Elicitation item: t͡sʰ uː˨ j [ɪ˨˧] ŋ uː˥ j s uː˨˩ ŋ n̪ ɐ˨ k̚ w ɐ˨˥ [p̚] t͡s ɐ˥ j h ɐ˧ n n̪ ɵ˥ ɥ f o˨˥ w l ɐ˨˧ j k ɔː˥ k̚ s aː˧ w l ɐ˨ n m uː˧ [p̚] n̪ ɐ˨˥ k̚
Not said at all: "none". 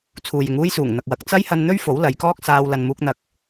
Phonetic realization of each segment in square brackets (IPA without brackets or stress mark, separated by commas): ɪ˨˧, k̚, k̚